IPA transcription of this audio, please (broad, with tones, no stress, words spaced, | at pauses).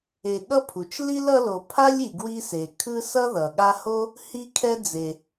e˨ ɠʌ˥pʰu˩t͡ʃ li˥lʌ˦lo˨pʰa˥lʲ i˨ɡwi˦se˩kʰɯ˥ sʌ˥ðʌ˩ɠa˦ho˥ | hi˥kʰɛ˥d͡ze˨